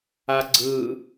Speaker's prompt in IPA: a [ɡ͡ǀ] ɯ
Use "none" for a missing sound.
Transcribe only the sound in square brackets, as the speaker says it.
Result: ɡ͡ǀ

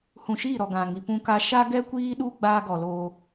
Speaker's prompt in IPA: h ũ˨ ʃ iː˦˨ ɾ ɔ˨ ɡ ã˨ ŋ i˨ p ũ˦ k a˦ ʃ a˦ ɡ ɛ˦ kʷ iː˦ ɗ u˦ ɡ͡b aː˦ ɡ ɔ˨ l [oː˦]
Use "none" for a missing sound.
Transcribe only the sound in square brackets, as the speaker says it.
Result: oː˦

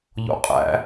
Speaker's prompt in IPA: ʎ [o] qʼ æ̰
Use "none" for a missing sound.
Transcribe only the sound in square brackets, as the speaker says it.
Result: o̰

